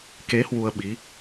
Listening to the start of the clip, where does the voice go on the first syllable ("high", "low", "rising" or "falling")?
rising